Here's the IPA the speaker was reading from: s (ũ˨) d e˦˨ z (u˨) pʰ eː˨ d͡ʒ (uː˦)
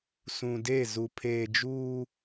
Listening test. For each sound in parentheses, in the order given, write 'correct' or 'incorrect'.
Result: correct, correct, correct

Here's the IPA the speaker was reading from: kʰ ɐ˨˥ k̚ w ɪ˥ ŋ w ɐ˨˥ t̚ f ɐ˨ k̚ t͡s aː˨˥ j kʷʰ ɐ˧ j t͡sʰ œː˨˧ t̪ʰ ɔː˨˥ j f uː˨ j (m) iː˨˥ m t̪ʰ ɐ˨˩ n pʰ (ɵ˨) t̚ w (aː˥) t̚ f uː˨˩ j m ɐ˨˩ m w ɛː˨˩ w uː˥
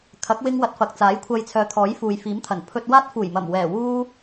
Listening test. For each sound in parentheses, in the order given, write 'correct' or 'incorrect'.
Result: incorrect: f, incorrect: ɵ˧, correct

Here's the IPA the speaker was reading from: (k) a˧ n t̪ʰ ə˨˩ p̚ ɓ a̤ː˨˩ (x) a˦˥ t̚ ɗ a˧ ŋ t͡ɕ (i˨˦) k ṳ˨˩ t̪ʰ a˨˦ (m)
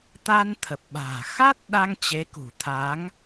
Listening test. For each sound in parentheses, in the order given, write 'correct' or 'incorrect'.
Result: incorrect: t̪, correct, incorrect: e˨˦, incorrect: ŋ

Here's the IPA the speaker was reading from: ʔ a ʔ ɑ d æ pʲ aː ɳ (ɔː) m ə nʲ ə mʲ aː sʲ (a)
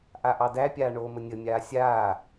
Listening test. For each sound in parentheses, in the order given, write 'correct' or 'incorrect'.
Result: incorrect: oː, incorrect: aː

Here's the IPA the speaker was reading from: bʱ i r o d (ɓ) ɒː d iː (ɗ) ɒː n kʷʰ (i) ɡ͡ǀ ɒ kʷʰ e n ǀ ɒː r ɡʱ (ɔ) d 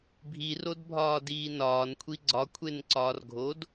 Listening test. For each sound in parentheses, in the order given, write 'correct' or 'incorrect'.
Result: incorrect: bʱ, incorrect: n, correct, incorrect: o

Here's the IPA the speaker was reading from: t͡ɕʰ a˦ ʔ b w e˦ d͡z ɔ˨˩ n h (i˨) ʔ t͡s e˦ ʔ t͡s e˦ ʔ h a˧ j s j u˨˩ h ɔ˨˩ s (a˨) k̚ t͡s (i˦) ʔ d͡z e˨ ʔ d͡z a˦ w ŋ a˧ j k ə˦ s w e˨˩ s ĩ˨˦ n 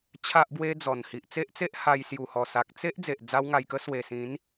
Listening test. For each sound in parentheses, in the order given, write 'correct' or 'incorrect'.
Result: correct, correct, incorrect: e˦

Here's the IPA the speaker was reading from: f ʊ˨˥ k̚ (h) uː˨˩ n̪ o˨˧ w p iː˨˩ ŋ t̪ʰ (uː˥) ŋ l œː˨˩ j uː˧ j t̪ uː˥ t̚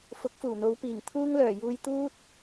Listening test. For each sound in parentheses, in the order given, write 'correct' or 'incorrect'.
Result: incorrect: f, correct

